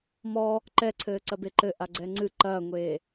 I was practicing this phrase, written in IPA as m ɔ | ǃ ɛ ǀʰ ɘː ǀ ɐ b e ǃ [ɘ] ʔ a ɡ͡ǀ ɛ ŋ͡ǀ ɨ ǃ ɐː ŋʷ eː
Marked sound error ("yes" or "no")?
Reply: no